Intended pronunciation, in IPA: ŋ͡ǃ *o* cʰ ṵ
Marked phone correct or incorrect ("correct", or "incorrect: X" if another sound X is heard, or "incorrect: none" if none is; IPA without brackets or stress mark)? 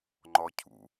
incorrect: ɔ